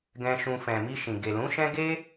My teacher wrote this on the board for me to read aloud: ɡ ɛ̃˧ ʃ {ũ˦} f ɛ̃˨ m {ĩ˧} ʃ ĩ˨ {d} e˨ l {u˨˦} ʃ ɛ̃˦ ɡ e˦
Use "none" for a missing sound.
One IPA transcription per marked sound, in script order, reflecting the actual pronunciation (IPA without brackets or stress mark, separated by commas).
ũ˧, i˧, ɡ, ũ˨˦